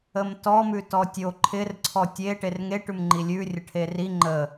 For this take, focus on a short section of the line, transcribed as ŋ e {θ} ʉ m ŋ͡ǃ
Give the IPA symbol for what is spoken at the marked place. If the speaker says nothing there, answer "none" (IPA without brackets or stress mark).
ʈ